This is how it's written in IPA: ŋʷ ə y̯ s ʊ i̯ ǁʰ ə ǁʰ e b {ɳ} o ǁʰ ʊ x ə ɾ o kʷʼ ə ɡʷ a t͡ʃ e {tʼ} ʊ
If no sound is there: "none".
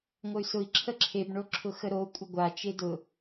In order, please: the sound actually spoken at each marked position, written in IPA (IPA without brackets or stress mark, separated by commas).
ɳ, d